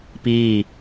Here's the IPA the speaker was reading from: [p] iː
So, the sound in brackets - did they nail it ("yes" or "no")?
yes